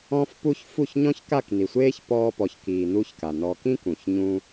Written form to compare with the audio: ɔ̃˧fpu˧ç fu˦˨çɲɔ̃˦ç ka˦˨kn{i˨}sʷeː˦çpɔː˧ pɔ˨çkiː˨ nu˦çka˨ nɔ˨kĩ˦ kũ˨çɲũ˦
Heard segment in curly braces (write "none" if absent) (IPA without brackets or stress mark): i˨